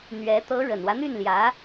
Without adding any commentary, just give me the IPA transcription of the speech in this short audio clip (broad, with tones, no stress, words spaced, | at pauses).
n̪ɥɛ˧˥ t̪ɤ˧˥ ɻə˨˩nwä˦n̪y˥˩nljä˧˥